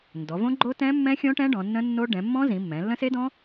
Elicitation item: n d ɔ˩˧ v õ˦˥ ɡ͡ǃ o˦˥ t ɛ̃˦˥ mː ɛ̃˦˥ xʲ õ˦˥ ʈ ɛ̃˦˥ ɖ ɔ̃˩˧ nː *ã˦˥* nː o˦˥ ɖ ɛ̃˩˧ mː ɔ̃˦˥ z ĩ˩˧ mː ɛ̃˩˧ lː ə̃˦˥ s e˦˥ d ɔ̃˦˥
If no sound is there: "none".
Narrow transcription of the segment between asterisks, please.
ə̃˦˥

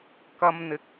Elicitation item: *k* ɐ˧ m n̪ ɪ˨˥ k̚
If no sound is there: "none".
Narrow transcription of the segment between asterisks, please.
k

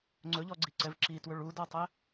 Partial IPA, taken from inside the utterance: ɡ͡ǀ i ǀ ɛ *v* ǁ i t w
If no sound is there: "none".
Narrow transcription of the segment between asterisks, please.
v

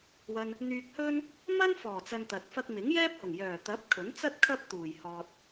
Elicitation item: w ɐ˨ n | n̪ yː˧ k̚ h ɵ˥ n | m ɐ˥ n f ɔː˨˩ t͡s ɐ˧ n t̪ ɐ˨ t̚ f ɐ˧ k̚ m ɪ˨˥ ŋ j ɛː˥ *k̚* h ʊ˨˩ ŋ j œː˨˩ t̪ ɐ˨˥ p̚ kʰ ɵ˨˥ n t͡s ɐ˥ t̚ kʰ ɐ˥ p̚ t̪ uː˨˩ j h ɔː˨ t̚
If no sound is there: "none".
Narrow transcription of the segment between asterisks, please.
p̚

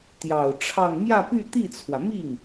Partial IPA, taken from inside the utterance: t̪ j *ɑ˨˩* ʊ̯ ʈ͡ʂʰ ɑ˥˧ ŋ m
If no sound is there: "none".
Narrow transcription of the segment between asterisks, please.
ɑ˨˩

